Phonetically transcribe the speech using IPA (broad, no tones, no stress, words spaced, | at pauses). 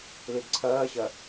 lidǀʰɐːɕɐ